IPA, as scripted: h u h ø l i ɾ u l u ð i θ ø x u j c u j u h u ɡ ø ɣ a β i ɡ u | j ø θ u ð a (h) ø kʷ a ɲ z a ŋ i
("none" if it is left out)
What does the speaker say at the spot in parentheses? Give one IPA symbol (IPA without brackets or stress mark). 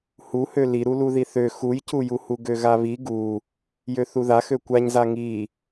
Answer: x